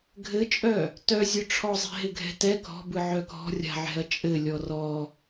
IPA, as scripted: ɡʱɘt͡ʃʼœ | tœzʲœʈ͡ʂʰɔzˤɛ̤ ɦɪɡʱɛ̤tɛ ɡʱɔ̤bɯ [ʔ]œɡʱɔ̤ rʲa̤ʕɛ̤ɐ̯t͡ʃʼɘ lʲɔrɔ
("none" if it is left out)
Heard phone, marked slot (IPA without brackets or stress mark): ʕ